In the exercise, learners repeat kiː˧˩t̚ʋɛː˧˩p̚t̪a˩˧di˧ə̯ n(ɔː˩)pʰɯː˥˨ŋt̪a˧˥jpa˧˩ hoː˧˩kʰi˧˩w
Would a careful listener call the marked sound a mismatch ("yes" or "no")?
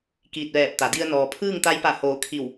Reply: no